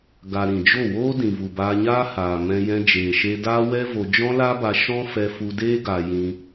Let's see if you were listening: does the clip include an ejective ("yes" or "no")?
no